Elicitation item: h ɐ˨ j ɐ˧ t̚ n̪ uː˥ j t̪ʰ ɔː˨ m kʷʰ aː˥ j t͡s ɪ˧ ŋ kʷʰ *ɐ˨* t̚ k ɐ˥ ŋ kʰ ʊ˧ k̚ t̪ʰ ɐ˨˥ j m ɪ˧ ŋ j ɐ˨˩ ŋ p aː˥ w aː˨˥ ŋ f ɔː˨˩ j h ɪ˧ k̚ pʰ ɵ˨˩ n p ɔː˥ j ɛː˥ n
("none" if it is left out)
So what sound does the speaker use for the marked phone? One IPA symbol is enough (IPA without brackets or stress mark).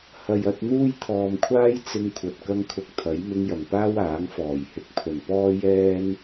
ɐ˨